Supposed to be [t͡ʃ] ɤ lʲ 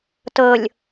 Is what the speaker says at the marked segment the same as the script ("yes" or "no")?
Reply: no